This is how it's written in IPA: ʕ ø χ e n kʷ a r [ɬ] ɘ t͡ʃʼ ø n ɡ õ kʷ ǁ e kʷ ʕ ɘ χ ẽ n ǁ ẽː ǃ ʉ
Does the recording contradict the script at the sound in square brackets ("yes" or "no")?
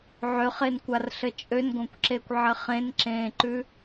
no